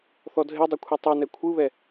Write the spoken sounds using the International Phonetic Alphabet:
θɔdʱe dˤekʷʰɛtˤɯ nɛkʷʰɯβɛ

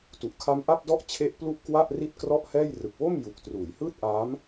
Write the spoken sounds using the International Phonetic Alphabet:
tu˨˩ʔkʰa˦˥m ʔa˥˩p̚dɔ˥˩ʔt͡ɕʰe˦˥ʔ plu˥˩ʔkwa˥˩ʔ ri˥˩t̚krɔ˥˩ʔhɛː˥˩j rɯ˨˩k̚wo˥˩m ju˨˩k̚ truː˩˦jhɯː˥˩t̚ʔaː˦˥m

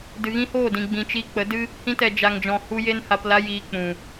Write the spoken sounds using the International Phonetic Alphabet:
dɨ˨ɣĩ˦hoː˦˨dĩ˨ ɡ͡bĩ˨t͡ʃi˧ k͡pə˨˦ dɨ˦ | hĩ˧tɛ˨ d͡ʒa˨ŋd͡ʒɔ̃˨ hu˧ je˦nha˧pla˦ jiː˧ k͡pũ˨

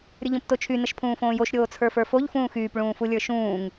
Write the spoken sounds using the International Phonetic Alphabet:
ɾʲəʎõptot͡ʃʰy nəʃpʰũːfõːjoʃ ɾʲoːt͡sʰə˞fə˞foʎ fũːxyːp ɭũːfulʲə˞ʃũːŋ

